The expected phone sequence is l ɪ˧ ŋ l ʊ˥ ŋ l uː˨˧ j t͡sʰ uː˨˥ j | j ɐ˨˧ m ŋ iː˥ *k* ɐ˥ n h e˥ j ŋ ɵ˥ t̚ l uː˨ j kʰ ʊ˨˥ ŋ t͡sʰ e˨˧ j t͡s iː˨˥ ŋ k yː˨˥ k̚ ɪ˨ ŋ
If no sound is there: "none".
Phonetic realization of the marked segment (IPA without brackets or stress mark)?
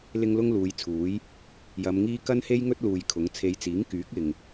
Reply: k